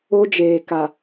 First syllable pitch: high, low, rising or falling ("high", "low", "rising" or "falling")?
high